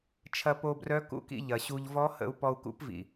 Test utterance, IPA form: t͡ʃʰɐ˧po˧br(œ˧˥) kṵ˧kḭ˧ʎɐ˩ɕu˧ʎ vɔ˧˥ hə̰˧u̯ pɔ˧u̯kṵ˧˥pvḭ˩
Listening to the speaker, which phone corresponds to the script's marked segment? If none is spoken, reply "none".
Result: œ˧˥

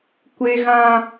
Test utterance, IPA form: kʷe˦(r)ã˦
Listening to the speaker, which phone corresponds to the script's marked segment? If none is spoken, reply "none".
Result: ɣ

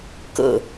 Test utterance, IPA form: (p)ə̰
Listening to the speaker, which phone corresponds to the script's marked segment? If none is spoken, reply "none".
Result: k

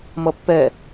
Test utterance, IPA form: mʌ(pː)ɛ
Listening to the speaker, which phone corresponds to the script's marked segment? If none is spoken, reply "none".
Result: pː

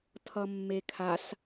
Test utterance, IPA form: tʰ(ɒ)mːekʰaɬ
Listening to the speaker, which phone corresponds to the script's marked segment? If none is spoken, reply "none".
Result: ʌ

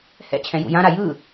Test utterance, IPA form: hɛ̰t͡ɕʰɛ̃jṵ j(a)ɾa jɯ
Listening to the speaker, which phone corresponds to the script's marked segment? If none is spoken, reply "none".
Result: ã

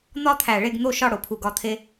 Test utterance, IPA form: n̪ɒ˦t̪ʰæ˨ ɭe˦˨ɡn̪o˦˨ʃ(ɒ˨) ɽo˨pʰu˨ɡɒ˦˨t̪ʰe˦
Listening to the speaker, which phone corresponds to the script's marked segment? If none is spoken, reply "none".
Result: ɒ˦˨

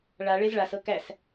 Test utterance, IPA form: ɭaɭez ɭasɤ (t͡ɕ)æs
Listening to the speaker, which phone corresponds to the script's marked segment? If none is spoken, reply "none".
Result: k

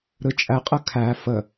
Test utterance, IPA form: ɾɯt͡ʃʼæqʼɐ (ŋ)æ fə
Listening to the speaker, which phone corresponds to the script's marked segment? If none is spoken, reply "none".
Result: kʰ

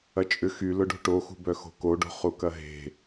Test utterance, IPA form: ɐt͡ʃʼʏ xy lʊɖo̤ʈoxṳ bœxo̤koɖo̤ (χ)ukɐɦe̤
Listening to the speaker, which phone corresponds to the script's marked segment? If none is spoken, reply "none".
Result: χ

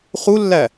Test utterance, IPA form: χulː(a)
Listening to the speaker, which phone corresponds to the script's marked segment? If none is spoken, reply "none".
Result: æ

